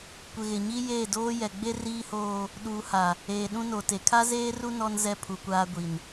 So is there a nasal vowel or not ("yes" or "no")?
yes